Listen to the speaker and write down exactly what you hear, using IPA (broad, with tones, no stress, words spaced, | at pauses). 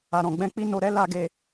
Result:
a˨ɾɔ̃˨ɡ͡bɛ̃˧k͡pi˧ no˨ɾɛ˨˦ la˧ɡe˧